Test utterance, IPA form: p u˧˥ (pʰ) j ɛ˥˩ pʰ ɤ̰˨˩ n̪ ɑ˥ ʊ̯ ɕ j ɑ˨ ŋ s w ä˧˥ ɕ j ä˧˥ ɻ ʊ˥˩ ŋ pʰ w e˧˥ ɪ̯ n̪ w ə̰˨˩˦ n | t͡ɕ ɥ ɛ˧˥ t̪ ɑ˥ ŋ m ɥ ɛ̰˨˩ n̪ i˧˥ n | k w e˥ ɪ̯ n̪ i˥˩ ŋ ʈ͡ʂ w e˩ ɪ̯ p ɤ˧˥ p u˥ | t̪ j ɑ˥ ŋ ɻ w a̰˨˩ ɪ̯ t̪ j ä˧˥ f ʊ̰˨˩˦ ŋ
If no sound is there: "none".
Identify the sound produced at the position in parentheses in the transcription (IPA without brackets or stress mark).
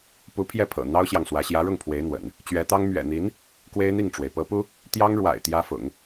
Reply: pʰ